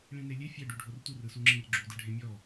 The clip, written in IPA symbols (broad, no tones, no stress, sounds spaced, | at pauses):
ɭ ĩ n e lʲ e fʲ ɛ ɖ u ɖʱ o r tʷ ɯ r ɯ s u ŋ͡ǁ ĩ r ɡ͡ǁ u d ɯ ɖʱ ẽ mʲ ɔ